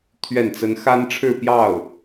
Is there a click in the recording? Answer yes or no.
no